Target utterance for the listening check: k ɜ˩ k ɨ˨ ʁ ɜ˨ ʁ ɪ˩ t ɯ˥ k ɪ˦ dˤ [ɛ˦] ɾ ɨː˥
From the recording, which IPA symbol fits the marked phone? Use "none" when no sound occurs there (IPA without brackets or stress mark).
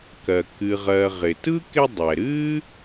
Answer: ɛ˩